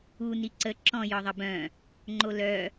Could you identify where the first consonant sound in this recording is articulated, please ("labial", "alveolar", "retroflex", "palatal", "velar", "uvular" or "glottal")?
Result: alveolar